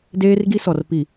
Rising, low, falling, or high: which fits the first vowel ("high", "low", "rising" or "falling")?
high